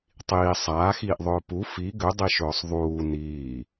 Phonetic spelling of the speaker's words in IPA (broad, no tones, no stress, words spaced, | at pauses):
tˤiː sˤaːxiːʔðˤɵː pu fi ɡʏdˤiʃɵːsˤ ðˤuː niː